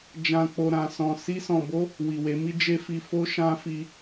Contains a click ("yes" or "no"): no